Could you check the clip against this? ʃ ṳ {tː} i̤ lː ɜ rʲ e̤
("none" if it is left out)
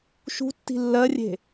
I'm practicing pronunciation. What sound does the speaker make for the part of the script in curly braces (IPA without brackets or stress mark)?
tː